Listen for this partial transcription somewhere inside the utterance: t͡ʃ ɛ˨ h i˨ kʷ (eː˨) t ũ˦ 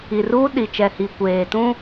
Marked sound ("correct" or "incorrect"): correct